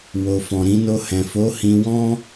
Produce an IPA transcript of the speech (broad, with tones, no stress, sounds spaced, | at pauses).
w o˨ f ɔ̃˨ ɾ ĩ˧ n o˧ h ɛ̃˨ f o˨˦ h ĩ˧ w ɔ̃˦